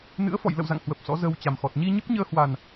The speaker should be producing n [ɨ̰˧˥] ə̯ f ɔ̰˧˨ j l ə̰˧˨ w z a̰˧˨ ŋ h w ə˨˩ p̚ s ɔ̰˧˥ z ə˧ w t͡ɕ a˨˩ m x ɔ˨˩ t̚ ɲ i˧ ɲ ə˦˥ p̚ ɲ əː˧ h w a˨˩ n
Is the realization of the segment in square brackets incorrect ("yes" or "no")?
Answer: no